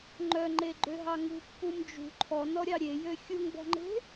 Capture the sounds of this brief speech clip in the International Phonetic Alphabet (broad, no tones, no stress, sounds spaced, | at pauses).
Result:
ŋ͡ǃ œ ŋ͡ǃ e ɡ͡ǃ ø ɦ ɑ ŋ ṳ pː u m d͡ʒ ṳ ǃʰ ɔ n ɔ ɾʲ ɑ ɾʲ e j ø xʲ u ŋ b ɔ̤ ŋ͡ǃ e̤